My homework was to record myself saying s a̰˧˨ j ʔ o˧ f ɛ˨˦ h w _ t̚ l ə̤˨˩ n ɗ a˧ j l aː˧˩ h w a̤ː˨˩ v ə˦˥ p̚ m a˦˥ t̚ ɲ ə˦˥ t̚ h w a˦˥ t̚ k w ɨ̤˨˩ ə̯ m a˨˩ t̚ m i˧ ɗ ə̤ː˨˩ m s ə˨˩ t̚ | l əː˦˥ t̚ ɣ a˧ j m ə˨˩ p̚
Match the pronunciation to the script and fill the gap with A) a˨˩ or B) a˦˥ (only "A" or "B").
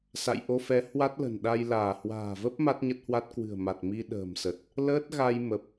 B